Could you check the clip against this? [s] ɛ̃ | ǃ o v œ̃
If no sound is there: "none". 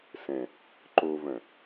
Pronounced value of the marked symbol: s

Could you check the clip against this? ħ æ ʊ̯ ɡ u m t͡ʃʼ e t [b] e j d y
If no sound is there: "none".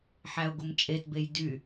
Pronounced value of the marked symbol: b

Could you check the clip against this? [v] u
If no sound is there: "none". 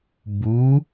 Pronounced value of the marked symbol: b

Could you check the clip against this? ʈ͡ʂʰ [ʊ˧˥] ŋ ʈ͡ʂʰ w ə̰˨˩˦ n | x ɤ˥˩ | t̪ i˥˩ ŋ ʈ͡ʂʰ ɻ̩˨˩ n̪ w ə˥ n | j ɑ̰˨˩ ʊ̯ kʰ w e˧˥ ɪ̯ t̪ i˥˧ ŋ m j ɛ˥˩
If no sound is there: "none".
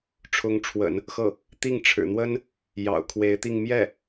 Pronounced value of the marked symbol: ʊ˧˥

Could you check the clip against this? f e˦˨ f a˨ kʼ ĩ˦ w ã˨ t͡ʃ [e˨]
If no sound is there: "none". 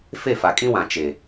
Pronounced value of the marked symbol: e˨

